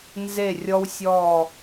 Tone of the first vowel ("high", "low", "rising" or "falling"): falling